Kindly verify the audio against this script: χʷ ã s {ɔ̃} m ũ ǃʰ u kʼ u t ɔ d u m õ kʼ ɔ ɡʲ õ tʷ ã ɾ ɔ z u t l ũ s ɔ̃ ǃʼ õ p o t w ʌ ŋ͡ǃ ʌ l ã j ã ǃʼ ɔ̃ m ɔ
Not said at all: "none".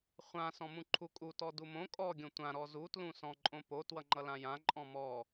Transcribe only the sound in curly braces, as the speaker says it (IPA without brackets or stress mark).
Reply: ɔ̃